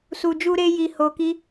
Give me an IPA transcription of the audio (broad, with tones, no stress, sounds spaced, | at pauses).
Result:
s u˧ d͡ʒ u˦ ɾ e˦ j i˧ h o˧ k i˦